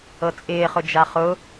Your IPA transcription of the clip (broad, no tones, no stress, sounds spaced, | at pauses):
ɤ t͡sʼ ɪː χ ʊ d͡ʒ a χ ʊ